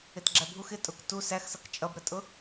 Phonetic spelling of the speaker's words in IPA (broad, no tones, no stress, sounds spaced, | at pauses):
ɪ t ɡ͡ǁ æ bʱ u x ɪ tʼ ʊ k t u s æ x s ʌ k t͡ʃʼ ʌ b ɾ ə tʼ ʊ